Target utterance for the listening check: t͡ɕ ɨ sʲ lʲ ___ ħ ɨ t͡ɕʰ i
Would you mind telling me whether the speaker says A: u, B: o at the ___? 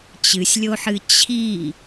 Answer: B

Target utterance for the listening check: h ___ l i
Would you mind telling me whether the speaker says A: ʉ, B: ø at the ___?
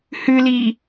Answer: A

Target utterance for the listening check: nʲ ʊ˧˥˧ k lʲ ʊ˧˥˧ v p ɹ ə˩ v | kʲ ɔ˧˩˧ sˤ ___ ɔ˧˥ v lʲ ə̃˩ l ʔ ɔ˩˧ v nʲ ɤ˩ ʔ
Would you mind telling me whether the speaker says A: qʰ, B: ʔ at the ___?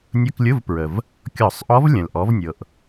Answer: B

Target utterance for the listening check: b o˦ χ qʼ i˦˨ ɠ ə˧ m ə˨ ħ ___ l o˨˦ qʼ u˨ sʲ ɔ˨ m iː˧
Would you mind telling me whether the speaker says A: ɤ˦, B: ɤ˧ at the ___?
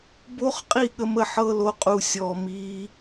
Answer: B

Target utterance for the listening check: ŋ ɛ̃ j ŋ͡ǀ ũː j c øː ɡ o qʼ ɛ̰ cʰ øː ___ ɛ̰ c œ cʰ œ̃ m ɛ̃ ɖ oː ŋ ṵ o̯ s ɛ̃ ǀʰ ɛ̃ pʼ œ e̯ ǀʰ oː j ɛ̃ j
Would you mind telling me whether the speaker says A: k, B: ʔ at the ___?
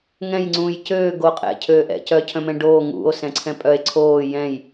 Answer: B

